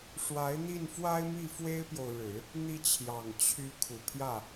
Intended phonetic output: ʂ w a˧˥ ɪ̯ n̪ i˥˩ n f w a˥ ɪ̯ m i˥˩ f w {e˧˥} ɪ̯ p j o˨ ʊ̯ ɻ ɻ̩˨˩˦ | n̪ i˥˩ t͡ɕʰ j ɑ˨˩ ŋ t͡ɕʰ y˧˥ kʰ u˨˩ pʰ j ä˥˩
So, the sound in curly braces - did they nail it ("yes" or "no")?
no